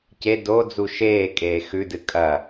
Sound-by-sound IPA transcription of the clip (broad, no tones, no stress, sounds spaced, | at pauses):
c e d o d͡z u ʃ eː kʼ eː x ʉ d ɨ kʼ ɐ